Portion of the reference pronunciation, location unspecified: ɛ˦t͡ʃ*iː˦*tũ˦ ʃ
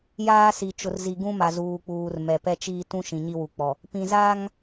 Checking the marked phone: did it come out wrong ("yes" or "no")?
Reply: no